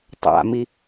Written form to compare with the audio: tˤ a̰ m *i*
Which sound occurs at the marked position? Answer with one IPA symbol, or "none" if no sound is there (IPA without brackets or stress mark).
i